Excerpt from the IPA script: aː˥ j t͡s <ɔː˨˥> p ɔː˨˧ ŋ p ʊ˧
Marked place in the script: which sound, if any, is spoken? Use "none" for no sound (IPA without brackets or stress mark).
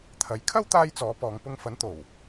ɔː˨˥